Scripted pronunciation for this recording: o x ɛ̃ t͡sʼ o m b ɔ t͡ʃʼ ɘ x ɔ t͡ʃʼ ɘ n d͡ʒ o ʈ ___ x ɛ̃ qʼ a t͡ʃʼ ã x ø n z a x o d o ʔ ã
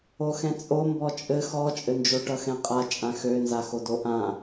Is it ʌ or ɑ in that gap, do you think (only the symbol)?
ʌ